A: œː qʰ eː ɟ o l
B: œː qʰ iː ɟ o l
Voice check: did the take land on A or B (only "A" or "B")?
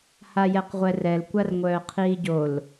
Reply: B